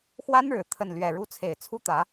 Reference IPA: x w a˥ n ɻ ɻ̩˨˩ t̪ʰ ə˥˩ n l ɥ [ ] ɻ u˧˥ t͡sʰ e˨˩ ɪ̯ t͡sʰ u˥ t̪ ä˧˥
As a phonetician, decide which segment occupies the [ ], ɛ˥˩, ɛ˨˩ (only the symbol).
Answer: ɛ˨˩